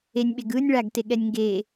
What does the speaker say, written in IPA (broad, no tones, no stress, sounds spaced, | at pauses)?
e nʲ ɓ e ɡ ɯː nʲ ɭ a ɡ t e ɠ ɛ nʲ ŋ ɡ eː